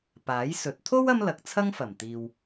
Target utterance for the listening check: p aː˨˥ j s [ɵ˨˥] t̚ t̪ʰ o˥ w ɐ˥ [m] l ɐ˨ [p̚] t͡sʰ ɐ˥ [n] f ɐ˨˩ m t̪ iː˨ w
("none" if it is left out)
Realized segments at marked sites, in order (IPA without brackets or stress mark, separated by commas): ɵ˨˥, m, k̚, ŋ